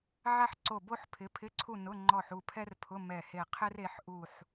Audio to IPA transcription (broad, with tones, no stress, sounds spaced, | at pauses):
ʕ a˥ ħ ǀ o˦˨ b o˥ ħ pʰ ɪ˨˥ pʰ ɪ˧˥˧ ǀʰ u˦˨ n ʊ˧˥˧ ŋ͡ǃ ɔ˦˨ ħ u˦˨ pʰ ɛ˥ r pʰ ʊ˧˥˧ m ɛ˦˨ h e˦˨ qʰ ɪ˥ r e˨˥ ħ ʔ u˦˨ ħ